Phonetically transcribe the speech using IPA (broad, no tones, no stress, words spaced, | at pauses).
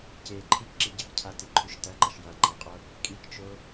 ce ǃʰikǁi ɟɐkcʰatiǃʰʉʃ tɐǃɐʃ jaŋ͡ǃaqʼo | kʼikt͡ʃo